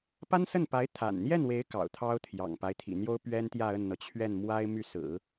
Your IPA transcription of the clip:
p a˥ n s ə˥˩ n p a˧˥ ɪ̯ t̪ʰ a̰˨˩ n n̪ j ɛ˥˩ n w e˧˥ ɪ̯ k ɑ̰˨˩ ʊ̯ t̪ʰ ɑ˥ ʊ̯ t̪ʰ j ɑ̰˨˩ ŋ p a˦ ɪ̯ t̪ʰ ḭ˨˩ n̪ j o˥ ʊ̯ p ɥ ɛ˥ n t̪ j ä˥˧ ə˥˩ n n̪ ɤ˩ t͡ɕʰ ɥ ɛ˥˩ n m w a˥ ɪ̯ m y˥˩ s ɹ̩˨˩˦

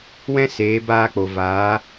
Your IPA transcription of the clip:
w ɛ̃˦ s eː˨˦ b aː˧ k͡p o˨ v aː˨˦

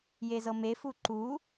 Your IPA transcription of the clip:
j e z ɤ m e f u ǃ u

